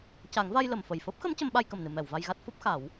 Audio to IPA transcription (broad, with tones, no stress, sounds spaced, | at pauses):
c a˨˩˦ ŋ v a˧ j l ə˨˩˨ m f ə˨˩ j f əː˦˥ p̚ x ə˧˥ m c ə˧˥ m ɓ a˧ j k ə˨˩ m n ɨ˨˩˨ m ɛ˨˩˨ w v a˧ j ɣ a˦˥ t̚ f o˦˥ p̚ x a˨˩˦ w